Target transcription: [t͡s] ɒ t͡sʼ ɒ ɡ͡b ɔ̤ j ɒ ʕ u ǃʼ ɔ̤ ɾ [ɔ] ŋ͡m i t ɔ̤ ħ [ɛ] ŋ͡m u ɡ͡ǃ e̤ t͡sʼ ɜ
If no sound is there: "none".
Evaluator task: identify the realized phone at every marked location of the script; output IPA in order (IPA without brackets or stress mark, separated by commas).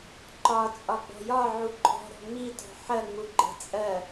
ǃ, ɔ̤, ɜ